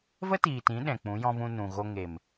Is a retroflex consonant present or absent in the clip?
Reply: absent